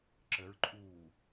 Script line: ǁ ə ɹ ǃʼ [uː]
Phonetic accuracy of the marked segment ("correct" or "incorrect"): correct